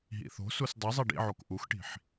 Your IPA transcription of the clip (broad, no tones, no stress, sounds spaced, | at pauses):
ɦ ḭ θ o̤ s u s dˤ i zˤ i ɖ ḭ ʕ o k ʔ u x ʈ i̤ ħ